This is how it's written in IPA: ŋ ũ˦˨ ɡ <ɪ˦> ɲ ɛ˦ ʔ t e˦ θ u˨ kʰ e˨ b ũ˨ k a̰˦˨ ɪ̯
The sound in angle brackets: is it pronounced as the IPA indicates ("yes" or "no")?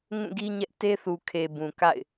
no